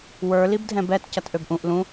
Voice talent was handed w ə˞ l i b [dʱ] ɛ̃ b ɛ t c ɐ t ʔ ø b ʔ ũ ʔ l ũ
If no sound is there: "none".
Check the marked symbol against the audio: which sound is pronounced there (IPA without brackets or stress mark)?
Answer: dʱ